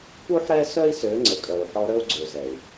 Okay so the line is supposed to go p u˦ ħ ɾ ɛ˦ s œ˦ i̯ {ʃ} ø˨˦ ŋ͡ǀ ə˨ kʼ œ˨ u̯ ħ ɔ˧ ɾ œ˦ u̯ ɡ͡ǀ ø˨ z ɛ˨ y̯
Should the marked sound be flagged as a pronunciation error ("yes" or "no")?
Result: yes